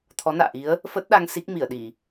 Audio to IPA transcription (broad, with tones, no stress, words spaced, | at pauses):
t̪ʰɔ˨˦na̰ː˧˨ʔi˨˦ə̯ | fə˦˥t̚ɗa˧ŋ si˦˥k̚mi˧˩ə̯ɗi˧˩˨